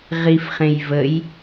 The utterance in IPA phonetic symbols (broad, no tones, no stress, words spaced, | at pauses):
ʁifχẽj vəj